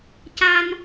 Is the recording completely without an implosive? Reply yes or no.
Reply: yes